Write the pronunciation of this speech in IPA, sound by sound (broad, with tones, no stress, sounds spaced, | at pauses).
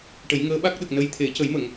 ʈ ə˨˩˦ j ŋ əː˧˥ ɓ a˦˥ k̚ ɗ ə˨˩ k̚ n ə˧ j t̪ʰ e˨˩˦ c ə˨˩˦ j m ə˨˩˨ ŋ